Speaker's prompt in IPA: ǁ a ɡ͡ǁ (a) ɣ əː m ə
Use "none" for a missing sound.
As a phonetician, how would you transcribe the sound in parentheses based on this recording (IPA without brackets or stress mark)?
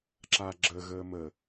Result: ə